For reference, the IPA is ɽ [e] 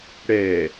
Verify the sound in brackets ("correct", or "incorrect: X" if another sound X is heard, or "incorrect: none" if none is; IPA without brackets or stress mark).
incorrect: ɛ